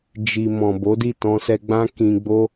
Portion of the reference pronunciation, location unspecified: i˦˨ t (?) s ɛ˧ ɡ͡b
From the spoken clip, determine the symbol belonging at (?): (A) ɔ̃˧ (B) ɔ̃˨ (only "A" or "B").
A